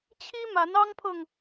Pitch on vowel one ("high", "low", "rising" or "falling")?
high